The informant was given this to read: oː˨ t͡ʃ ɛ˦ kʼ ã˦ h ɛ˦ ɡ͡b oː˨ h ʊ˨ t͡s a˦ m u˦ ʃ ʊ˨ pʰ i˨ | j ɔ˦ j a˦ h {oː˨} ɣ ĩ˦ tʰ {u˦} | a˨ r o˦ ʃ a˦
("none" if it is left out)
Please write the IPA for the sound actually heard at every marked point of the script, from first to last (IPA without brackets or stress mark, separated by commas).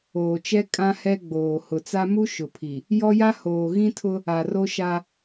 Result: oː˨, ʊ˦